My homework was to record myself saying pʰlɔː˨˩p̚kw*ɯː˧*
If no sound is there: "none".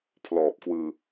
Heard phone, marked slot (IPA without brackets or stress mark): ɯː˧